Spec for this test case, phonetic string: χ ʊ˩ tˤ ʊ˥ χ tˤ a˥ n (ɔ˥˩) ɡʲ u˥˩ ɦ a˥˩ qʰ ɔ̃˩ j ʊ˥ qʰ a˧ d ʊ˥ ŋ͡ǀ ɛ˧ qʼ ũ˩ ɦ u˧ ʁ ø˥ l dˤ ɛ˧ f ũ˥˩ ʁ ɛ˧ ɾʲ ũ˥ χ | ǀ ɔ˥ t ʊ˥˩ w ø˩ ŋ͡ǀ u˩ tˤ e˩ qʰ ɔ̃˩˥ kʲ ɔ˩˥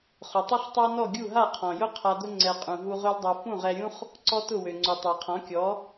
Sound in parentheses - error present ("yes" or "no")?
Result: no